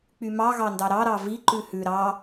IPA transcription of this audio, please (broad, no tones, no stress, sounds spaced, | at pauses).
k͡p y m ɑ ɣ ɑ n d ɑ ɾ ɑ ɾ ɑ v i ǃ ʉ h ʉ ɾ ɑ